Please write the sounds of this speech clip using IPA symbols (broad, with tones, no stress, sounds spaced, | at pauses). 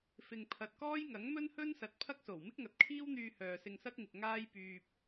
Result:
f ɪ˨ ŋ pʰ ɐ˨ t̚ k ɔː˥ j ŋ ɐ˨˥ ŋ m ɵ˥ n h ɵ˥ n s ɐ˨˥ t̚ pʰ ɐ˥ k̚ s o˨˩ w m ɪ˥ k̚ ŋ ɐ˨˥ t̚ kʰ iː˥ w n̪ yː˧ h œː˨ s ɪ˧ ŋ s ɐ˥ k̚ ŋ ɪ˨ k̚ ŋ aː˥ j p yː˧ p̚